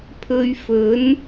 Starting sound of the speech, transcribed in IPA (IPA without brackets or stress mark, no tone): pʰ